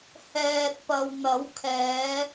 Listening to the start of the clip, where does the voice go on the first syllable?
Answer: low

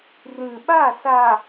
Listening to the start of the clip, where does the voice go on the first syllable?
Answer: low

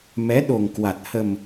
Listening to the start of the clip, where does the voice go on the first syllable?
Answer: rising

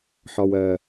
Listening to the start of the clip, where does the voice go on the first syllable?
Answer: low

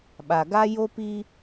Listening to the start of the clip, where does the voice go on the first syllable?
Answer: low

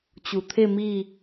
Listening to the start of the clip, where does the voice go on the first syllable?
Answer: low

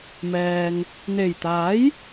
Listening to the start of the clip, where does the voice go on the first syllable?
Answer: low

